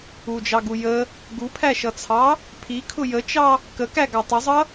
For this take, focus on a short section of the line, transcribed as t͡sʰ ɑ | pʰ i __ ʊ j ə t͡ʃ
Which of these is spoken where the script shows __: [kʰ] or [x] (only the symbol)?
kʰ